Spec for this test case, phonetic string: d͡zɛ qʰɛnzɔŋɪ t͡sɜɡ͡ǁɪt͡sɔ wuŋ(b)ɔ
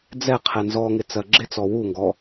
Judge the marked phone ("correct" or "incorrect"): incorrect